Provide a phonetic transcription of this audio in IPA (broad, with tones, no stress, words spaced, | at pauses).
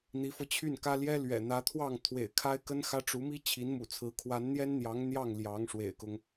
n̪i˧˥fɤ˧t͡ɕʰy˥˩nkä˥ ljɛ˥lɥɛ̰˨˩ n̪ä˧˥t̪ʰwɑ˥˩ŋ t̪ʰwḛ˨˩ɪ̯kʰa˥ɪ̯kə˥nxä˥ ʈ͡ʂu˧˥mi˥ t͡ɕʰi˧˥nmṵ˨˩t͡sʰɹ̩˧˥ kʰwa˧˥nn̪jɛ˥nn̪jɑ˧˥ŋ n̪jɑ˥˩ŋ ljɑ˧˥ŋʂwḛ˨˩ɪ̯kʊ˦ŋ